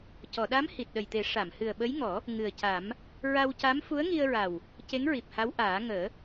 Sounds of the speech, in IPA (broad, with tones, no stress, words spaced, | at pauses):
cɔ˨˩˨ɗa˧˥m hi˨˩t̚ɗə˨˩jt̪e˨˩˦ ʂa˨˩˨m hɨ˨˩ə̯ɓə˧˥jŋɔ˨˩˦ | ŋɨ˨˩ə̯ca˨˩˦m | ɹa˧wca˧˥m fu˧˥ə̯ŋi˧ə̯ɹa˨˩w | ce˧˥ŋɹi˨˩p̚ha˧˥w ʔaː˨˩˦ŋəː˨˩˦